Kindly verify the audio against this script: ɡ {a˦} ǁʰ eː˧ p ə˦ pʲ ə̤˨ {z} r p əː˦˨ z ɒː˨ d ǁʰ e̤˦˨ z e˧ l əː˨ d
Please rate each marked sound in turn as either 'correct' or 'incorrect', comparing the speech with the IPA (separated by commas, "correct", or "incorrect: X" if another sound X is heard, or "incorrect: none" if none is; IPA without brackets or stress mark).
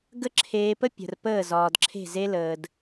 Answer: incorrect: ə˦, incorrect: none